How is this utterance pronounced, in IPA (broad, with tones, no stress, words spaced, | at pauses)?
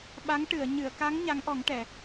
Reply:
ɓa˧˥ŋ ʈɨ˨˩˨ə̯ ɲɨ˨˩˨ə̯ka˧˥ŋ ɲa˧˥ŋʔɔ˨˩˦ŋʈɛ˨˩˨